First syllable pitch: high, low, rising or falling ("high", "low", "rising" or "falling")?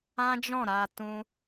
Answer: high